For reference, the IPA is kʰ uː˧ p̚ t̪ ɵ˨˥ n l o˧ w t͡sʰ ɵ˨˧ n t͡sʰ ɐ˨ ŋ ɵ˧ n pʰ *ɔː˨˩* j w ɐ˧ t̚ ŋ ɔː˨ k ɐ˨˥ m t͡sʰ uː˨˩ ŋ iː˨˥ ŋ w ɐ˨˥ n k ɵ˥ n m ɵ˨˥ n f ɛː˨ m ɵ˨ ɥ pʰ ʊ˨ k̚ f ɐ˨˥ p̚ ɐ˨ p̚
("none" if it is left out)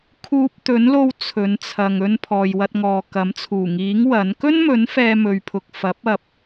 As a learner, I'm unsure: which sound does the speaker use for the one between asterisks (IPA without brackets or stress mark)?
ɔː˨